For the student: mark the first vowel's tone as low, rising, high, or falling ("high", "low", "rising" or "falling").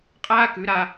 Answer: high